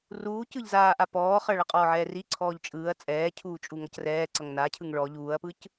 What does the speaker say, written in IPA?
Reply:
r uː c ɯ ʎ z aː ʔ a p ɔː χ ʌ ɭ a qʼ ɔː ʕ ɛː r i ǀʰ ɔː ʎ t͡ʃʼ ɯː ɐ̯ t͡sʼ ɛː cʰ uː t͡ʃʼ u ŋ ʌ c r ɛː ǀ ʌ ŋ n a cʰ ɯ ŋ ɭ ɔ ʎ uː ɐ̯ p ɯ c

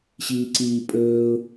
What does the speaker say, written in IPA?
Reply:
ɕ iː ǀ iː pʼ ɵː ʊ̯

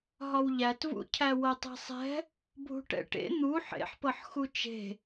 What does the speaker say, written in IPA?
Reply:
ɦ ɒ w ʎ æ t v ṵ cʰ æ w ɤ tˤ e̤ sˤ ɛ̤ | bʱ ṳ ʈ ɛ̰ ʈ ḛ n̪ u ħ ḛ ħ p ɤ ħ x u t͡ʃ e̤

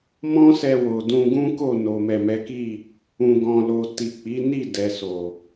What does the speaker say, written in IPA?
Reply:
m ɔ̃˦ s ɛ˧ w o˨ d ũ˧ ɡ ũ˦ k o˦˨ n o˨ m ɛ˨ m ɛ˨˦ k i˦˨ | ũ˨ ɡ ɔ̃˨ l o˨ t i˨ k͡p i˨˦ n i˦˨ d ɛ˨ s o˨

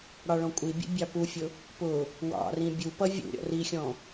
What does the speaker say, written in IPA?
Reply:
ɽ ɑ ɭ ɔ̃ kʷʼ i bʲ ṵ bʲ ɑ p u fʲ ʊ | p ʊ | w ɑ̰ r ĩ bʲ u p ʌ vʲ ṵ ɾʲ ɔ̰ r i xʲ ɔ̃

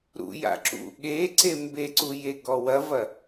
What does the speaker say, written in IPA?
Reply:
ɾ ṵ j a̰ ǁ ṵ ɠ e ǀ e m b e ǀ u j e ɡ ɔ w ɐ v ɐ

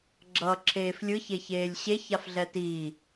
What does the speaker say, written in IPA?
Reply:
ɡ͡ǁ ʌː ǁʰ eː f lʲ ɯ ç e ç eː lʲ ɕ e ç a f ɮ ɛ t iː

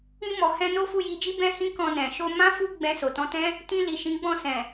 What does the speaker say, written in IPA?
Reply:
ĩ˧ m ɔ˨ h ɛ̃˧ n o˦ f u˦˨ j i˧ d͡ʒ i˦ b ɛ̃˦ h ĩ˦ k ɔ̃˧ n ɛ̃˨ ʃ o˧ m ã˦ f u˦ ɡ͡b ɛ̃˧ s o˨ t ɔ̃˧ t ɛ̃˦ | t ĩ˧ l i˨ ʃ ĩ˨˦ ɡ͡b ɔ̃˦˨ s ɛ̃˨

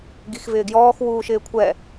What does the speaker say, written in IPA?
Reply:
ɡ i x v ɪː ɡ j ɔː x w uː ʃ ɪː kʷʰ ɛ

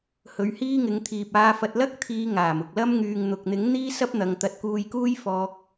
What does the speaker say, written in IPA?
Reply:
h ɵ˨˧ ɥ h iː˥ ŋ ɪ˨˧ ŋ t̪ʰ iː˨ p̚ aː˧ f ɐ˧ t̚ l ɐ˥ k̚ t̪ʰ iː˨˧ ŋ aː˨˩ m ʊ˨ k̚ l ɐ˥ m ŋ yː˨ ŋ n̪ ʊ˨ k̚ n̪ ɪ˨˥ ŋ n̪ iː˥ s ɐ˥ p̚ n̪ ɐ˨˧ ŋ t̪ ɐ˨˥ t̚ k uː˧ j k uː˥ j f ɔː˧ k̚

